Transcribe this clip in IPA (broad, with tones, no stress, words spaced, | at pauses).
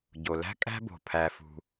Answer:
ɟo˨ læ̤˦kʼæ̤˦bo̤˨ pʰæ˧fṳ˧